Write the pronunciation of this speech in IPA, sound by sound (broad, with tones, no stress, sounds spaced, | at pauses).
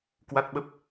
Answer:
k w a˦˥ t̚ ɓ ə˦˥ p̚